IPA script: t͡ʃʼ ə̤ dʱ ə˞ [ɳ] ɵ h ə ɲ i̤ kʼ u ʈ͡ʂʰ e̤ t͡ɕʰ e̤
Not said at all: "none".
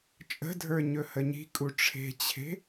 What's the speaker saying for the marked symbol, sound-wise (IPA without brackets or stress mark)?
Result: ɲ